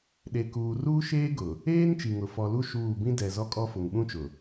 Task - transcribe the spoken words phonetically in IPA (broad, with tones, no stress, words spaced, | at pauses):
ɗe˨ kuː˨ruː˦ʃeː˦ɡʊ˨ | eː˦n t͡ʃi˨ŋʊ˨ fɔ˨lu˦ ʃuː˦˨ bĩ˦dɛ˨zɔ˦kʼɔ˦ fʊ˨ŋɓũ˦t͡ʃʊ˨